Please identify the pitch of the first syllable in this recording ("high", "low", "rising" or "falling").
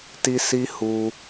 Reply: high